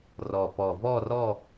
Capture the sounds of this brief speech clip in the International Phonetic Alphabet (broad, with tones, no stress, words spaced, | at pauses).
rɔ˨˩ pɔ˨˩vɔ˥˧rɔ˥˧